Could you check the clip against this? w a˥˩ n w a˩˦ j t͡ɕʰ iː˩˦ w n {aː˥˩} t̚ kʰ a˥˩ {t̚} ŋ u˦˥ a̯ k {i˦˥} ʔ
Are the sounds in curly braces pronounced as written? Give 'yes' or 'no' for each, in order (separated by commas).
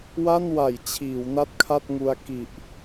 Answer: no, yes, no